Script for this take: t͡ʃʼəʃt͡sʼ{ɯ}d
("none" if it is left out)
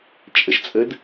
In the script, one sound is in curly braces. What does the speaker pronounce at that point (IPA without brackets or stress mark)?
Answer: ə